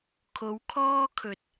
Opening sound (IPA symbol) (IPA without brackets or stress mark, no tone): kʰ